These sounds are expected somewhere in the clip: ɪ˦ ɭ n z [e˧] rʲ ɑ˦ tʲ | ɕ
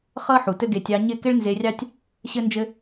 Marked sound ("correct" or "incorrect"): correct